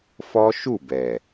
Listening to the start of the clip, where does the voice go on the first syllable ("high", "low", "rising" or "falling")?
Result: high